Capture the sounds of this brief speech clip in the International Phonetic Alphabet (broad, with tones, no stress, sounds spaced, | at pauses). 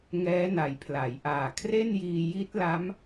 ŋ ɛː˦˥ n a˨˩ j pʰ l a˩˦ j ʔ aː˨˩ kʰ r e˥˩ n j iː˧ j i˦˥ t̚ l a˦˥ m